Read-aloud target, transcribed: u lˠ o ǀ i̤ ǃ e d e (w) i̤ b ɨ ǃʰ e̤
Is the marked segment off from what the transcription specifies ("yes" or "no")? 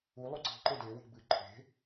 no